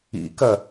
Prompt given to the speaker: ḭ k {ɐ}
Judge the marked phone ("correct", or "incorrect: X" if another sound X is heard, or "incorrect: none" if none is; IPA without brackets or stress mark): correct